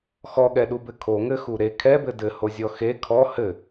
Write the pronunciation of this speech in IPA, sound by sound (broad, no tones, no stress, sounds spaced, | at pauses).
x ɔ ɠ ɛ ɗ u b ɘ kʰ o ŋ ɘ x u ɾ e kʰ ɛ b ɘ d ɘ h o zʲ ɔ x e kʰ ɔ h ɘ